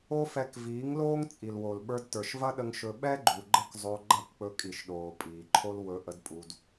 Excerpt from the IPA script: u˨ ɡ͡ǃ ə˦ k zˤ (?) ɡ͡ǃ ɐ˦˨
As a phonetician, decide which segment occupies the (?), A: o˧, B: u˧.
A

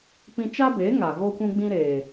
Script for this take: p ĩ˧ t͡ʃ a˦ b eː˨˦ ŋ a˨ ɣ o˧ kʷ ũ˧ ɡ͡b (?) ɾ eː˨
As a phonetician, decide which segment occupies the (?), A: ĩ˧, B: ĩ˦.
A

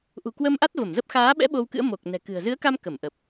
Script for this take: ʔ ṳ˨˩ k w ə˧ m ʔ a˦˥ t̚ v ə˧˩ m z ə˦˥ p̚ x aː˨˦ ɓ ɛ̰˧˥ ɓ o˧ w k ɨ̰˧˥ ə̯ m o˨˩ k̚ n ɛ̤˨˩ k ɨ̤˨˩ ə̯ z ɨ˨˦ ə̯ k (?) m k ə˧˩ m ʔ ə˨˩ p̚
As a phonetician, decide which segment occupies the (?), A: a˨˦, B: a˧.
B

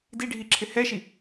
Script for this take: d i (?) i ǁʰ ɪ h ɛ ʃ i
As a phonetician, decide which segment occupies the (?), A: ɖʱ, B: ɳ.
A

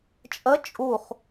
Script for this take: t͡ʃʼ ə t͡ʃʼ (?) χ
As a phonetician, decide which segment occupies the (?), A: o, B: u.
B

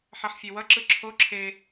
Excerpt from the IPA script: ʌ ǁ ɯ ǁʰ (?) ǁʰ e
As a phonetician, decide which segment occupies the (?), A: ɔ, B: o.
B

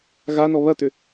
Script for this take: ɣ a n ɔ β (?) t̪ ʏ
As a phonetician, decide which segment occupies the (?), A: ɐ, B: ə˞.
A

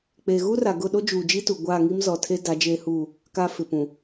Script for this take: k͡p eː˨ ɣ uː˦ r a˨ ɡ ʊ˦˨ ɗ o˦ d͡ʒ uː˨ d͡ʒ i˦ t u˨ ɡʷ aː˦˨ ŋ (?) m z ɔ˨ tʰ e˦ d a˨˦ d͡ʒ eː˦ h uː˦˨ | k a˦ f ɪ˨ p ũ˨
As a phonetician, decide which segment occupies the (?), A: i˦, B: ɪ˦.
A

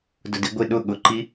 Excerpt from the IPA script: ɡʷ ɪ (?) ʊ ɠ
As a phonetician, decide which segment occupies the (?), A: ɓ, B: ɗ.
B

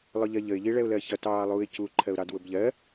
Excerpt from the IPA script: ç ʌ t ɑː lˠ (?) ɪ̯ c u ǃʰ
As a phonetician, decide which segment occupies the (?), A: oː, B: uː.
B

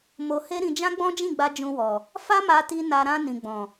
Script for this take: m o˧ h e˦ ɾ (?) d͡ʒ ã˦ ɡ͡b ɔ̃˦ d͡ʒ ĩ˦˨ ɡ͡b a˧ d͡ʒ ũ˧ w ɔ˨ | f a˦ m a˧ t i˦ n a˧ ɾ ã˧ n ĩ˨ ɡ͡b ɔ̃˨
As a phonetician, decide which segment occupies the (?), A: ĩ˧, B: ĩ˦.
A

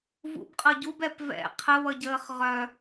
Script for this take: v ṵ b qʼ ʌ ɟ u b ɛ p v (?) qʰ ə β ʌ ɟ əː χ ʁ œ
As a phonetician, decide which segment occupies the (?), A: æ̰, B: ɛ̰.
B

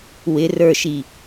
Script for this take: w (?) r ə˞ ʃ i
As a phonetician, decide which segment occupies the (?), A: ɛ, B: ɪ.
B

